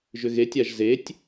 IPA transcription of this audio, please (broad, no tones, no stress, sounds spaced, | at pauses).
ʒ ʏ ɣ e tʲ a ʒ z e tʲ